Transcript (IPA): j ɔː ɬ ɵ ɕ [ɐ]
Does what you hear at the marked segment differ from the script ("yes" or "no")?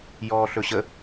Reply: yes